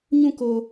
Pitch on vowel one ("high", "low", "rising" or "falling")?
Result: falling